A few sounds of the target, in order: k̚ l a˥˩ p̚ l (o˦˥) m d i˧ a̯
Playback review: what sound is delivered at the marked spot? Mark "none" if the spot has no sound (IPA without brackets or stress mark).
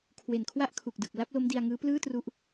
o˦˥